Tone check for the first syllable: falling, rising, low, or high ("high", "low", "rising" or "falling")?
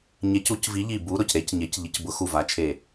rising